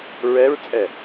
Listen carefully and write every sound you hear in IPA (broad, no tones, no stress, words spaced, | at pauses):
ɹɛɹt͡sʼɛ